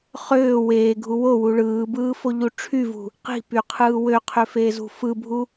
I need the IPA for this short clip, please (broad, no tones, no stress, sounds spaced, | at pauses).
χ øː w eː ɡʱ u w o w u ɭ ɯː b ɯː f o ʎ u ʈ͡ʂʰ y v ṳ | q i̤ p y qʰ ɯː w ø qʰ ø f eː z ṳ f ɯ bʱ u